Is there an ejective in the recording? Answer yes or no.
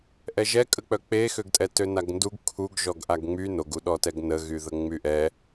yes